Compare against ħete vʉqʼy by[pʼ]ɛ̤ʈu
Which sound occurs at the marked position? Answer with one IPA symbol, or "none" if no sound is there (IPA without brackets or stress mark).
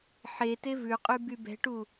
b